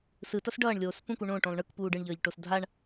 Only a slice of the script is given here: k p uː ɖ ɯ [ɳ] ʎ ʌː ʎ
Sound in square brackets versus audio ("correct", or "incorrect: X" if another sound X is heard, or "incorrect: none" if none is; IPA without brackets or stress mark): correct